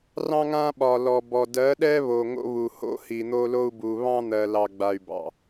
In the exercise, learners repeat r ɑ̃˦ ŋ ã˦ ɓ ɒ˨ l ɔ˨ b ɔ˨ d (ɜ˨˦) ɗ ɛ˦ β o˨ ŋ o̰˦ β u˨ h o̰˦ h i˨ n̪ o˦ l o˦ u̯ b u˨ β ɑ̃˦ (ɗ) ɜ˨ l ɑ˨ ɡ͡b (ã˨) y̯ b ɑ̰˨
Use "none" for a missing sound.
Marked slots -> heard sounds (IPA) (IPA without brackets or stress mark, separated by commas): ɜ˨˦, n̪, a˨